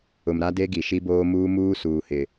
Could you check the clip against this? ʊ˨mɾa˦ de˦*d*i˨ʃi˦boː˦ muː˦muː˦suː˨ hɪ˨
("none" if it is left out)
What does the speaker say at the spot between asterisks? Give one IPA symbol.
ɡ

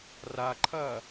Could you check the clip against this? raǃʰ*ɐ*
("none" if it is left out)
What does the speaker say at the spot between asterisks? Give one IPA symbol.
ɐ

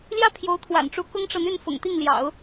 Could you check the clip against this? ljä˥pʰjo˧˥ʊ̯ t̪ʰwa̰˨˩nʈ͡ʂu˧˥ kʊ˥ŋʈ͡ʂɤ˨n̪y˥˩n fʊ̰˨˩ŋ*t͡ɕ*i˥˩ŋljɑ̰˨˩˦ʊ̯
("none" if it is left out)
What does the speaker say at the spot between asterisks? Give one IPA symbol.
t̪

